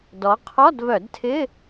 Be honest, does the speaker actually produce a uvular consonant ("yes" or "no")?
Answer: yes